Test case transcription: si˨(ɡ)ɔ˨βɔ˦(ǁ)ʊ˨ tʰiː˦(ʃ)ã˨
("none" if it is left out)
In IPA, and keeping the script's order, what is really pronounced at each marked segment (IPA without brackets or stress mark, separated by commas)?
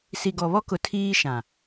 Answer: ɡ, k, ʃ